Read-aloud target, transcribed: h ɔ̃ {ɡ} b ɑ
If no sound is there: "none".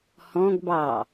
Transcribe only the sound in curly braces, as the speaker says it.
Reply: ɡ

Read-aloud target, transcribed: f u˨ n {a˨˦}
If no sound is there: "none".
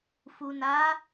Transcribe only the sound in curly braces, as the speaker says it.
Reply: a˨˦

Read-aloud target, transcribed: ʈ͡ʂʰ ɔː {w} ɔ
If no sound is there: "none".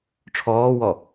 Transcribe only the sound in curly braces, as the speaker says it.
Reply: w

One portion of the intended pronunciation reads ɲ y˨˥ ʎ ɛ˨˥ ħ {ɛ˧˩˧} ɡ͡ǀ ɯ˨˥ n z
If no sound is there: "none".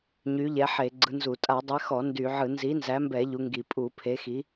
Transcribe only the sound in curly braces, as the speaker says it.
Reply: e˧˩˧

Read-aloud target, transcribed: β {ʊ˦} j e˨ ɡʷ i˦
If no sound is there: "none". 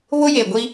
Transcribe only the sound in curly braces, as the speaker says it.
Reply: ʊ˦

